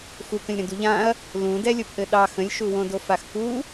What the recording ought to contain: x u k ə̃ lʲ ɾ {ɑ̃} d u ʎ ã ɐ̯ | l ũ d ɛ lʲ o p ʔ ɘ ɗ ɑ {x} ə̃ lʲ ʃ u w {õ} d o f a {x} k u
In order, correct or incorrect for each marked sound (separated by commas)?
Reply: incorrect, correct, correct, correct